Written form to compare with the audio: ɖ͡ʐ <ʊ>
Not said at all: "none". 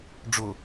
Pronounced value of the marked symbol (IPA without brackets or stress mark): ʊ